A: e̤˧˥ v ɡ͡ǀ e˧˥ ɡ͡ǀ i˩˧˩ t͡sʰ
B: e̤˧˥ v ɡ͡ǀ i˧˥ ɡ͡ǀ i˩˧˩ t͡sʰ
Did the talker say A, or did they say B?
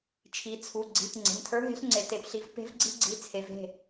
B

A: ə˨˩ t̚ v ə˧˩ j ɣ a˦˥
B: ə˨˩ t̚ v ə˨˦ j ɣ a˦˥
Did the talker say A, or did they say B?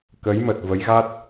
B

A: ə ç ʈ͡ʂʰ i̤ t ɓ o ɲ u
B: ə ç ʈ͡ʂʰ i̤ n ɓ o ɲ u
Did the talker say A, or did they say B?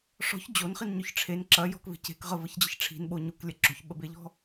B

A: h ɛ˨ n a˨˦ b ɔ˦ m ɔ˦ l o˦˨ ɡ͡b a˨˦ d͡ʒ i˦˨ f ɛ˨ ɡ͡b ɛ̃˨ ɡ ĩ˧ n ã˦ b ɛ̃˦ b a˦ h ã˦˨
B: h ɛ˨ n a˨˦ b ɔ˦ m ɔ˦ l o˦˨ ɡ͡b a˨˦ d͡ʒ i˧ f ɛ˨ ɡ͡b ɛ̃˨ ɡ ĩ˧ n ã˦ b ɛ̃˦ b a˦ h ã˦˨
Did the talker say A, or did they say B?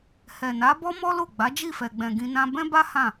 A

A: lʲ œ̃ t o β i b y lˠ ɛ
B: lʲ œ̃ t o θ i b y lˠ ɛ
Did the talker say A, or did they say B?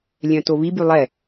A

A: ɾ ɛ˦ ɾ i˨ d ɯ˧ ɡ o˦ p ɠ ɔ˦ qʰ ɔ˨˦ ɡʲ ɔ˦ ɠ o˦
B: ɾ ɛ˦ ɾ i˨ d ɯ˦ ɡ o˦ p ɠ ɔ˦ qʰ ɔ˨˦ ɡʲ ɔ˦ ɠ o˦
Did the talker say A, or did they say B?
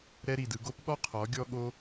A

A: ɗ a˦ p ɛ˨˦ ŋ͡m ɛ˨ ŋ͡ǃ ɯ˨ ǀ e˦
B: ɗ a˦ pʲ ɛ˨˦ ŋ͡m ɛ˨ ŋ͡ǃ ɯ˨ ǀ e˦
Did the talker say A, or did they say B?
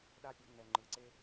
B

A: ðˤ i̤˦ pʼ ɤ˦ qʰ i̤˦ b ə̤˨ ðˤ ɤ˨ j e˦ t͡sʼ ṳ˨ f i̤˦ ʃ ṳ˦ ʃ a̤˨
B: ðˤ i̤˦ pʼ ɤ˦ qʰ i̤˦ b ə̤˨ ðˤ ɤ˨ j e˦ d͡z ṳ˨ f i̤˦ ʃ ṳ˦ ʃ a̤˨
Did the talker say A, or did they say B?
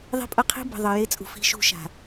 A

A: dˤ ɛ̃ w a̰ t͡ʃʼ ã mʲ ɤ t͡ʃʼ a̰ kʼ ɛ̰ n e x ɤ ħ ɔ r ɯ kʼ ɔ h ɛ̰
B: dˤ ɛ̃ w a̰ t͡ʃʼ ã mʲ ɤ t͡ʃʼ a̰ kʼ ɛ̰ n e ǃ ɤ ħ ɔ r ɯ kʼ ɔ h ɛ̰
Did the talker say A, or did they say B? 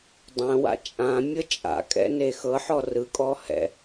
A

